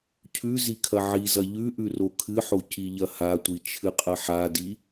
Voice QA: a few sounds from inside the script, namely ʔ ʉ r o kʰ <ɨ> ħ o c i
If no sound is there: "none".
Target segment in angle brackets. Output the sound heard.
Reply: ɨ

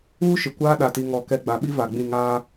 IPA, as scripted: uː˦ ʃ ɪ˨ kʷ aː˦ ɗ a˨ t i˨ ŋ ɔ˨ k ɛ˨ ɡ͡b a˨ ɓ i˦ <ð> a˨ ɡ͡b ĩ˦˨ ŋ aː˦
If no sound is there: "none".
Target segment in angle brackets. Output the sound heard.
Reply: v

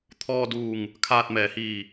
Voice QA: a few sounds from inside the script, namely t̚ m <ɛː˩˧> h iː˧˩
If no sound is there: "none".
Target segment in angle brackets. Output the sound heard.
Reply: ɛː˩˧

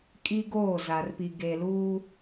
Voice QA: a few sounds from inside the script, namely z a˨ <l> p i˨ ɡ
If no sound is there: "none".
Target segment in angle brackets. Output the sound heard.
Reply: r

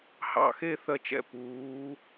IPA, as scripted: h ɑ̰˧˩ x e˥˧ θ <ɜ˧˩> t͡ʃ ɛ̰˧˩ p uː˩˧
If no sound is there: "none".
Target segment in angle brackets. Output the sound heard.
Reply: ɜ˧˩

